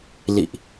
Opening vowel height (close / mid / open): close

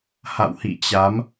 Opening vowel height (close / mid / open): open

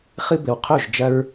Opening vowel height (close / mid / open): close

